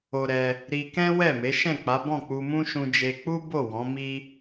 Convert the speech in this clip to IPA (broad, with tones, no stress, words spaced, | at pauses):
o˧ɾɛ˧ | ɾi˧kɛ̃˦wɛ˦˨me˨˦ ʃɛ̃˦˨k͡pa˨˦bɔ̃˦˨k͡pu˧ mũ˦ʃũ˧ d͡ʒe˧k͡pu˦bo˦˨ wɔ̃˨˦mi˦